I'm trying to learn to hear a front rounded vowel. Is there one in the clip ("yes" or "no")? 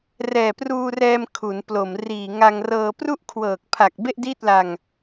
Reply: no